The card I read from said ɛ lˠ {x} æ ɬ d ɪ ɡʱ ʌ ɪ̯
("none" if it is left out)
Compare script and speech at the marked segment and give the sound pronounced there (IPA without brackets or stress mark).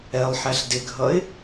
ħ